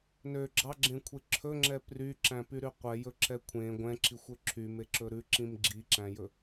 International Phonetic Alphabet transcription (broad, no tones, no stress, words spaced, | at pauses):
nø ɡ͡ǁɑɡ͡ǁẽkʷʰe ǁʰɵŋ͡ǁɛ pryǁæ̃pyɾy qʷɛjɵǁɛ kʷʰẽ ɡʷɛ̃ǁixʷø ǁʰymeǁɵ ɾʉǁĩm ɡ͡ǁiǁæ̃jɵ